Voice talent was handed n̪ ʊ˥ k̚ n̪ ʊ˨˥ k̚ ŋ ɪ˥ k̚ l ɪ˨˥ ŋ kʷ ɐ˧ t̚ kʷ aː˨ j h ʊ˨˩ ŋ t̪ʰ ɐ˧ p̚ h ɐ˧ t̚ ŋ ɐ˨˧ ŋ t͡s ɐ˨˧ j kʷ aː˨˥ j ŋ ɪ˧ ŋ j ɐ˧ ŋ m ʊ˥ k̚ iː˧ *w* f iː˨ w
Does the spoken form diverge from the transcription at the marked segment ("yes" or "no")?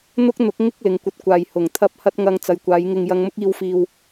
no